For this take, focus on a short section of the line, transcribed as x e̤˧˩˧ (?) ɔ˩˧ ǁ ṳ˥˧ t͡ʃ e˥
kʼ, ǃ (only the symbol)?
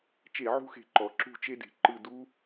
ǃ